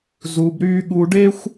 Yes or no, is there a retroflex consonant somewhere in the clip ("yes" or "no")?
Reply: yes